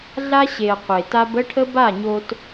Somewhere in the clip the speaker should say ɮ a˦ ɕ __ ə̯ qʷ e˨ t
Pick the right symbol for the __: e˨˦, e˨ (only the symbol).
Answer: e˨